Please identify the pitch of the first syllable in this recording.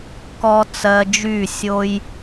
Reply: high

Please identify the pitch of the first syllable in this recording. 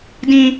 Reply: high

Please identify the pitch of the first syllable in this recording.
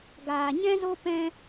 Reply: low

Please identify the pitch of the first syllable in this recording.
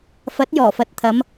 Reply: rising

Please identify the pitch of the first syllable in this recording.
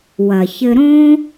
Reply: low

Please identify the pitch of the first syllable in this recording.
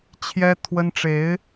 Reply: high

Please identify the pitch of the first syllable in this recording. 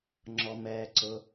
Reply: low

